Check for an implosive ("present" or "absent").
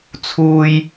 absent